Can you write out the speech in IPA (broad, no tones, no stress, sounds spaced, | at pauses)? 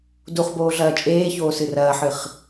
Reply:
d u χ b oː ɮ ɐː t͡ʃʼ eː ç oː s ɨ r ɐː ħ ɨ χ